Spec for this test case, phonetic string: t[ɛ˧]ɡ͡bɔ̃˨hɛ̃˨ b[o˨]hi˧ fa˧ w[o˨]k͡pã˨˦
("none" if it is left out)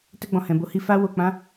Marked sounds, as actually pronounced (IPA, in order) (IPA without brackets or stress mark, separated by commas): ɛ˧, o˨˦, o˨